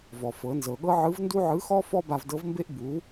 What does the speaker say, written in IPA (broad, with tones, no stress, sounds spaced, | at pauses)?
v ɔ˩ f ɤ˩˧ n z ɤ˩ ɠ ɤ˥ ʕ ɯ˧˥ v n d u˥ ʕ ɯ˧˥ x ɔ˥ f ɔ˥ b a˧ v d ɤ˧˥ v m b e˥ ʔ b u˩˧